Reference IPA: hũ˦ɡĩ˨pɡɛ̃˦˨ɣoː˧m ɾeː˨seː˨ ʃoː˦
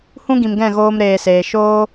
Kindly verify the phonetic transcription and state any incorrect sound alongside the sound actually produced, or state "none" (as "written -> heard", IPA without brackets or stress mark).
p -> m